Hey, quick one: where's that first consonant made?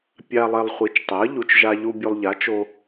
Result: lips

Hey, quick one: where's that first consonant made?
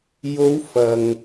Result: palate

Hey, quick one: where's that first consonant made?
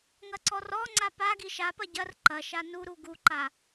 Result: velum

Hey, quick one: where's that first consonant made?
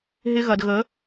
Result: throat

